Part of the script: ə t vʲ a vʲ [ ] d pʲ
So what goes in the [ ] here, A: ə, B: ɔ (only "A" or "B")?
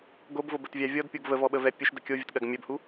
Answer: B